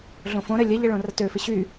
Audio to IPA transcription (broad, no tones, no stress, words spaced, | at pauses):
ɮõfõɾə lʲɐʎə ɭõrɐtøfɪ ɕy